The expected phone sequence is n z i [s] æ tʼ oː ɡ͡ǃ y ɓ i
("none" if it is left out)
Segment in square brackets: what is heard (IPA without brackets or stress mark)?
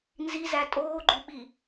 z